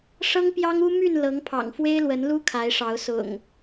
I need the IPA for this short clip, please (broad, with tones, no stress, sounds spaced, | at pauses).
ʂ ɤ˦ ŋ p j ɑ˦ ŋ u˦ m y˥˨ n l ɤ˨˦ ŋ pʰ ɑ̰˨˩ ŋ f w e˦ ɪ̯ l w ə˨˦ n l u˦ kʰ a˨˦ ɪ̯ ʂ ɑ˨˦ ʊ̯ s ʊ̰˨˩ ŋ